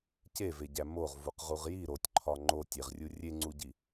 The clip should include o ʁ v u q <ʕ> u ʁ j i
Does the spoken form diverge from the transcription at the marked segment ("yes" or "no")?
yes